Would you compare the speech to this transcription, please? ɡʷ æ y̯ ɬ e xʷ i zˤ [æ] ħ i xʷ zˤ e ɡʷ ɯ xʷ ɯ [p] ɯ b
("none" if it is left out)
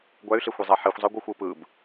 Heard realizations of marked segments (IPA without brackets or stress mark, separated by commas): æ, p